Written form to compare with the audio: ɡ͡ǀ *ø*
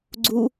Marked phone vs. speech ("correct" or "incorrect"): incorrect